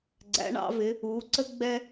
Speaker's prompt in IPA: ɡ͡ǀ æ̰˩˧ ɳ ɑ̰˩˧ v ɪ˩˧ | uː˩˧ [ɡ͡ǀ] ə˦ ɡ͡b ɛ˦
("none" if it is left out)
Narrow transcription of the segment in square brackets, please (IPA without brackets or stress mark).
ǀ